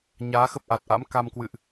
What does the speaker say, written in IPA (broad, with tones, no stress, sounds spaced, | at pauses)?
ɲ aː˨˦ x ə˦˥ p̚ ʔ a˨˩ t̚ ʔ a̰˧˥ m k a˧ m k w ɨ̰˧˨ ʔ